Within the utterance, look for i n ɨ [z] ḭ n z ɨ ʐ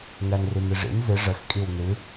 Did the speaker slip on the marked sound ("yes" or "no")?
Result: yes